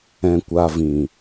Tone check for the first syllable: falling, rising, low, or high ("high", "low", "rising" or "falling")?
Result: low